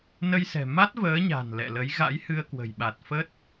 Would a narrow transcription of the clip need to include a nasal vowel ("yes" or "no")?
no